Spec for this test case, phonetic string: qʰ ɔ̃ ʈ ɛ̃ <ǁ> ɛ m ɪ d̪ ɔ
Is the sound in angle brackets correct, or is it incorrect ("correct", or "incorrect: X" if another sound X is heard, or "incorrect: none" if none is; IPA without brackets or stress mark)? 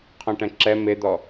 correct